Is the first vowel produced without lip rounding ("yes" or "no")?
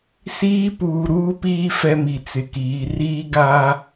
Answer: yes